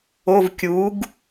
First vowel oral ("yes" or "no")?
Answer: yes